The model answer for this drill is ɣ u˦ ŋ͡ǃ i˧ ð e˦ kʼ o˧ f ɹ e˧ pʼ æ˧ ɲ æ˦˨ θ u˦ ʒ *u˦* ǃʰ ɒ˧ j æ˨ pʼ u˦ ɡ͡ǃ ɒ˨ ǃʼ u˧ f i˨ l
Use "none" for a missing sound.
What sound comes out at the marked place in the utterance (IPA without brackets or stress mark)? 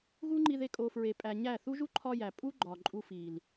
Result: u˦